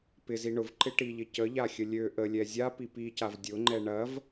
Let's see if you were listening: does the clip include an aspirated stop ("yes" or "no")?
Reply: no